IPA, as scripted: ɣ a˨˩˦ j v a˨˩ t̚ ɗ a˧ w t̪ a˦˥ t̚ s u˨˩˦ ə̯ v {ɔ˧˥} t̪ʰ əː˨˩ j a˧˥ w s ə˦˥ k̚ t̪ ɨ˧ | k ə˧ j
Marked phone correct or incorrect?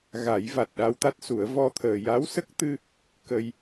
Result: incorrect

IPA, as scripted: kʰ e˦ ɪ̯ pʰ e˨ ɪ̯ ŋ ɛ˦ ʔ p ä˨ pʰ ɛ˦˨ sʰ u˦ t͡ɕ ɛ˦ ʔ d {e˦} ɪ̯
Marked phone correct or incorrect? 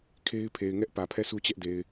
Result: incorrect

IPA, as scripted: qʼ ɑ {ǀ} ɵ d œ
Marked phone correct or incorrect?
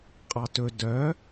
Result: incorrect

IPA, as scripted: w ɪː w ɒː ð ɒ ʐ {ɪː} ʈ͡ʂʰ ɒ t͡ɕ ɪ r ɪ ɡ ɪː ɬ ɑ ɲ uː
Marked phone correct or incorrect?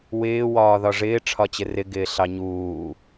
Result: correct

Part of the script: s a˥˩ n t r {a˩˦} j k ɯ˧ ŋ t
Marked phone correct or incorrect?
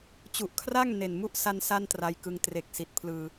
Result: incorrect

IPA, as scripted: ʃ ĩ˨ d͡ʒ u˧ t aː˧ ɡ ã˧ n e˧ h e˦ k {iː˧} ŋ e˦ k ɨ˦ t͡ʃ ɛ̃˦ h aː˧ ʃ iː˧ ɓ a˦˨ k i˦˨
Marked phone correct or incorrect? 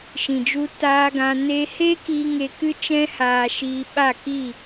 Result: correct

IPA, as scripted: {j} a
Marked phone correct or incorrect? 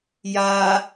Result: correct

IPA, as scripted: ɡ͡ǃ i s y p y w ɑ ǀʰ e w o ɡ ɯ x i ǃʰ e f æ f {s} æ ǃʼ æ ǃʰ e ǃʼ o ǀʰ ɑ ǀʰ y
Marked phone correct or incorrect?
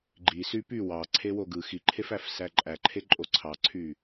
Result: correct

